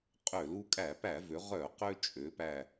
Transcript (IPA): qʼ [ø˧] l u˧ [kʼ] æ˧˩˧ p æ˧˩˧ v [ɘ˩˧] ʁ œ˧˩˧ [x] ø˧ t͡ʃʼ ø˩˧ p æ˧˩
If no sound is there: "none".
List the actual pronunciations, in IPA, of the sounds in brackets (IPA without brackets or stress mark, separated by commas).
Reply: ø˧˩˧, kʼ, ø˩˧, q